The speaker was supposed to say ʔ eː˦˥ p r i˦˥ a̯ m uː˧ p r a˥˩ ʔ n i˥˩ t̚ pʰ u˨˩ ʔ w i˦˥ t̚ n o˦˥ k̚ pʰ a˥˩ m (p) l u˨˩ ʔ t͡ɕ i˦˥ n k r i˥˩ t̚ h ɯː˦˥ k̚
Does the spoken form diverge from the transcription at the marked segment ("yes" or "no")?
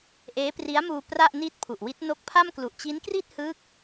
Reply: yes